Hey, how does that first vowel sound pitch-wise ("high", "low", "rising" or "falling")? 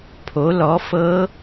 rising